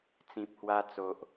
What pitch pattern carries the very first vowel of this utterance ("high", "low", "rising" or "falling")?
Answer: low